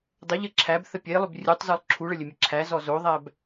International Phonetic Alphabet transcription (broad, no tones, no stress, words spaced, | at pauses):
dˤəʎɘ ǁʰæbθə pʲelˠʏb rʲutˤzɔlˠ ǁʰuɭəlʲɘmʲɘ ǁʰæzɔ zoðˤæb